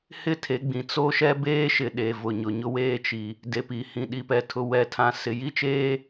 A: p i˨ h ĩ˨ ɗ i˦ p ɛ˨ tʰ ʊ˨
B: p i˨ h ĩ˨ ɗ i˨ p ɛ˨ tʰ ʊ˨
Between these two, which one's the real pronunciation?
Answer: B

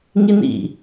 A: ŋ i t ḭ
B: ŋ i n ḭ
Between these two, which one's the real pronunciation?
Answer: B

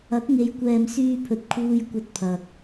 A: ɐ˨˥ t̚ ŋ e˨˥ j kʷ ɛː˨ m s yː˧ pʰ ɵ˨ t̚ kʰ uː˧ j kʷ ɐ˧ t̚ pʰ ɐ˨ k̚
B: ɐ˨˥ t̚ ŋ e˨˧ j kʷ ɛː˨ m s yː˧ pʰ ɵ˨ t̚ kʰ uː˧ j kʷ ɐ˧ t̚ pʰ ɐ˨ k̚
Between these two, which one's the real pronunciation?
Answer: B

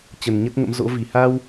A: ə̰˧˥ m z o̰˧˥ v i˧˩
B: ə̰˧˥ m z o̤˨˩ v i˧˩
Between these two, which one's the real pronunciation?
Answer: A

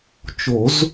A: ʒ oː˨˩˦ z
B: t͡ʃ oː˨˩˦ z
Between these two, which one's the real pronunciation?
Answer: B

